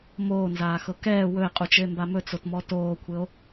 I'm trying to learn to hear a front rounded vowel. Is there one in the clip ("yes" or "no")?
no